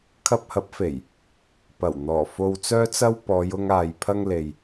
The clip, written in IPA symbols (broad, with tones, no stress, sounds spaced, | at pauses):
kʰ ɐ˧ p̚ h ɐ˨˥ p̚ f e˨˩ j | p ɐ˨˩ w n̪ ɔː˨˩ f o˨ w t͡s œː˧ t͡s ɐ˧ w p ɔː˨˧ j ʊ˧ ŋ aː˨ j pʰ ɐ˧ ŋ l e˨ j